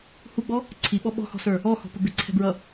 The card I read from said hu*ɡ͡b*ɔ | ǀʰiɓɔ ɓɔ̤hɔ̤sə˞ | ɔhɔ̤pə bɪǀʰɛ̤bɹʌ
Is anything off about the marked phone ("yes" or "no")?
no